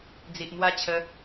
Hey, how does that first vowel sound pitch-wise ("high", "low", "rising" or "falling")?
low